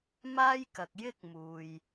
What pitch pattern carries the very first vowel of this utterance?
high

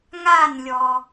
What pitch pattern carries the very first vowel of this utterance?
falling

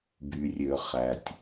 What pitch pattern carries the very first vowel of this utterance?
low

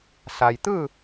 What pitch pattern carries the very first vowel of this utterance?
low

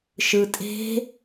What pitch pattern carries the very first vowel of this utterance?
low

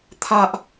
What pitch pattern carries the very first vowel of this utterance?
high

